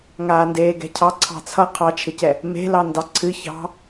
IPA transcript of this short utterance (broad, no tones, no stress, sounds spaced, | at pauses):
ŋ aː n d eː ɡ ɛ̤ cʰ ɑ ǀʰ ɑ̤ t͡sʰ ʌ qʰ ɑ t͡ʃʰ ɪ c ɛ | m e̤ l ɑ n d ɑ ǀʰ ɨ ç ɑ̤